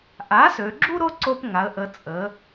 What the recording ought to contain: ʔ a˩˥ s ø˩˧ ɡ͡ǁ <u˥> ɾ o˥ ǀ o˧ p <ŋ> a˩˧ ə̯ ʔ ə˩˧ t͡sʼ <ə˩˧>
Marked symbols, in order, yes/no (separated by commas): yes, yes, yes